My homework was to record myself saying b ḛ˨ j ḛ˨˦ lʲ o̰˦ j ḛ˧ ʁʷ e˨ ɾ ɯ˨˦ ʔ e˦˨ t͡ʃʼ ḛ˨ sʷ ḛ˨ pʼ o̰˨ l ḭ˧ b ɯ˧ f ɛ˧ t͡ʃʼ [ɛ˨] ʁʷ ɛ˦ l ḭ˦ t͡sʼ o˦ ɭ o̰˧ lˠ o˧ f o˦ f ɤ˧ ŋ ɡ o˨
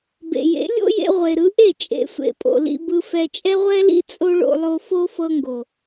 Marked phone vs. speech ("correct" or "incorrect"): incorrect